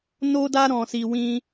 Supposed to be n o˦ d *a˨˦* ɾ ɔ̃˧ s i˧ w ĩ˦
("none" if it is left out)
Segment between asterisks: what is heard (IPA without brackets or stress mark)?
a˦